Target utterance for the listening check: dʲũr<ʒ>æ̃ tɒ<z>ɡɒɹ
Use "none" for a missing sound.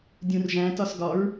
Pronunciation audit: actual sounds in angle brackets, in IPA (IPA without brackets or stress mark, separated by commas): ʒ, s